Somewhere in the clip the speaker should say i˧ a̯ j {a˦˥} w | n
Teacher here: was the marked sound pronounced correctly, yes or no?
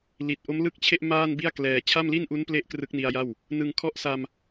no